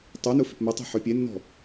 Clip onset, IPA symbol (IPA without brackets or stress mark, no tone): tˤ